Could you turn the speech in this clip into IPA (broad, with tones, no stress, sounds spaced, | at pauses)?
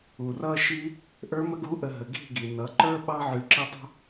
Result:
u˨ r ʌ˦ ʃ i˦ | ʔ ə˞˧ m ə˧ ɡ u˨˦ ʔ ə˨ ɦ ə˨ ɡ i̤˦˨ ɡ i˨ n ʌ˨˦ ǃ ə˞˦ ɓ ɑ˦ ʕ y˧ ǁ i˦ tˤ ṳ˦